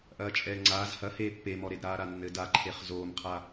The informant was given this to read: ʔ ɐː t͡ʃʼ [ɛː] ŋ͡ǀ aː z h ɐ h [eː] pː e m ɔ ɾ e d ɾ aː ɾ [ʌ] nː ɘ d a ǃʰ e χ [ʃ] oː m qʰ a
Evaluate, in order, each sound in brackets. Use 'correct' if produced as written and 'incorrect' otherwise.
correct, correct, incorrect, incorrect

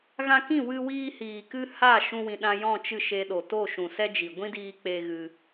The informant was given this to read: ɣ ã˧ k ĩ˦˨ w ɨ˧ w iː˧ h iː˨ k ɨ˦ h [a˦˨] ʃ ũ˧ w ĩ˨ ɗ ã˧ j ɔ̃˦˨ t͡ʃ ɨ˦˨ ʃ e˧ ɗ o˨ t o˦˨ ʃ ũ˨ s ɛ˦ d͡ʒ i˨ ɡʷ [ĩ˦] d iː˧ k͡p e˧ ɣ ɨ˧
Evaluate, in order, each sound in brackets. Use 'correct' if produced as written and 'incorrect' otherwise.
correct, correct

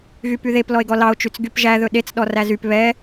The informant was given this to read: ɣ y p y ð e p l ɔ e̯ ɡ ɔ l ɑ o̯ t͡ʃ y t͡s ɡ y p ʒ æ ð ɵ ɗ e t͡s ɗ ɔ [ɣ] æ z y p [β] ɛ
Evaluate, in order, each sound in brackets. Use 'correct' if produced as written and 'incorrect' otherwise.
incorrect, correct

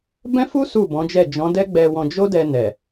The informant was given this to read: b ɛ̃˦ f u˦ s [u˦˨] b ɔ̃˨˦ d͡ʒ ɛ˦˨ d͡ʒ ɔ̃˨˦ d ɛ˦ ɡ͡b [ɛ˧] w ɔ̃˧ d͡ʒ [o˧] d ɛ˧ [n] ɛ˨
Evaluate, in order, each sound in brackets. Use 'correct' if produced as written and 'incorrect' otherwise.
correct, correct, incorrect, correct

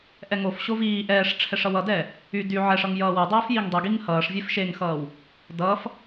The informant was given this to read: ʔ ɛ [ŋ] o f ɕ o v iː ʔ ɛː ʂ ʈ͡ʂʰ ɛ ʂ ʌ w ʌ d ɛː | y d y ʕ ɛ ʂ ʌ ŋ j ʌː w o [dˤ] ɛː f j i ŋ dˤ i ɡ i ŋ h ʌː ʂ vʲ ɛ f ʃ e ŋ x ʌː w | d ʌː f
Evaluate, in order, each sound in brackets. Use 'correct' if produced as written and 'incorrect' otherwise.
correct, correct

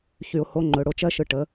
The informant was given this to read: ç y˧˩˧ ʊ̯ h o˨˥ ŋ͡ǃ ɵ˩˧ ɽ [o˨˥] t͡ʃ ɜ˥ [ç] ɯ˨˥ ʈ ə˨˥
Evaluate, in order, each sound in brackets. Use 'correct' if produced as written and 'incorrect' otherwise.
incorrect, incorrect

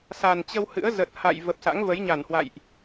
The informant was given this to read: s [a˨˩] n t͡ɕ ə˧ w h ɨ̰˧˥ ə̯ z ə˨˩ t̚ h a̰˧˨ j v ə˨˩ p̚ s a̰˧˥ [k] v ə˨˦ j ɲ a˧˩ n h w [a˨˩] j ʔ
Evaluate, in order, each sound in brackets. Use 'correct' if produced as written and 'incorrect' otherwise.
correct, incorrect, incorrect

